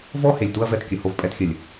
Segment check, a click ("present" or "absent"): absent